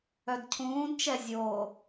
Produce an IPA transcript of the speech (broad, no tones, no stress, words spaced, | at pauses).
œdcʰũːdt͡ʃɛ zʲo